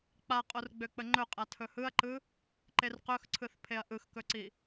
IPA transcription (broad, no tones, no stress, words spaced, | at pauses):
k͡paqʼorɡ͡bø k͡pəŋ͡ǃɵqʼa tʰɵhɯɐ̯ǃɯ | ǃerqɵxǀʰɯθ pʰeɐ̯ʔɯxkɵǀi